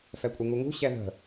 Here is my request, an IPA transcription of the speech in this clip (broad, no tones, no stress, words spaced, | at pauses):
fɛkʷʼɯŋuŋṳ ɕɛðə̤